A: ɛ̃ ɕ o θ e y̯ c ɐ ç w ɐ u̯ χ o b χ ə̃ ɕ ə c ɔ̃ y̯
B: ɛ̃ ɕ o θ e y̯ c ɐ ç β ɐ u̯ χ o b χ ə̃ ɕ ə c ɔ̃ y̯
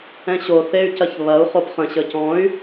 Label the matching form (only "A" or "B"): B